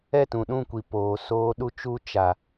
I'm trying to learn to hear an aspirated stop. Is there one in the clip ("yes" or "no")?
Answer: no